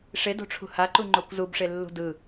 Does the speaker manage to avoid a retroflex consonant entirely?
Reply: no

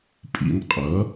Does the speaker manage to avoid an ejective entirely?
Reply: no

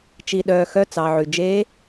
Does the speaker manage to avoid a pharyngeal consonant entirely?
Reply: no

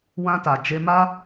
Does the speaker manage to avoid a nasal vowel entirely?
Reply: no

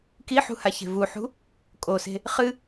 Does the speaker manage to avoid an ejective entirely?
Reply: no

